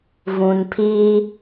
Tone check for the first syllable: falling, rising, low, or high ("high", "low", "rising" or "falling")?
low